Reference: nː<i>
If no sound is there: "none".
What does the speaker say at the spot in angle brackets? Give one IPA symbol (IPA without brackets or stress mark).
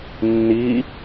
iː